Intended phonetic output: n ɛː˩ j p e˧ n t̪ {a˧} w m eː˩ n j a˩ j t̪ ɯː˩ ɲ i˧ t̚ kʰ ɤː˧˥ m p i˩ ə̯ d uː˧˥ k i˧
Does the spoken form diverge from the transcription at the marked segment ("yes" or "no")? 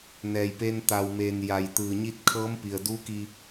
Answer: yes